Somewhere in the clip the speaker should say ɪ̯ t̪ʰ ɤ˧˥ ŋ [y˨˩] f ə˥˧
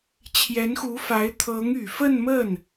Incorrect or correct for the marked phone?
correct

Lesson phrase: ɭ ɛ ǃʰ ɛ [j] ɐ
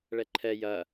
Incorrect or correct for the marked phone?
correct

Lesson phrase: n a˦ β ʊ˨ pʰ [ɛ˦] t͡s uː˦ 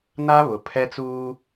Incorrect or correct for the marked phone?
correct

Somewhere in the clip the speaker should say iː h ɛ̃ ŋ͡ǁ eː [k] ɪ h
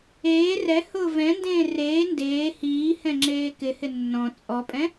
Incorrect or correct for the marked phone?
correct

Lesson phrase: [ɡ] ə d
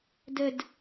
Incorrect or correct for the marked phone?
incorrect: d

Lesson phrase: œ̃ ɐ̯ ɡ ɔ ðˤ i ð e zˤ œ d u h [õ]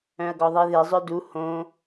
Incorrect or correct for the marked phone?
correct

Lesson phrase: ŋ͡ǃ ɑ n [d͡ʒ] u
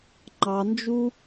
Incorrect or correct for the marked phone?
correct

